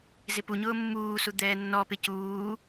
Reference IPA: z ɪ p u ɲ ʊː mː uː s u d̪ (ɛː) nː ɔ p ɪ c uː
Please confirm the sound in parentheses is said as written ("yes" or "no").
yes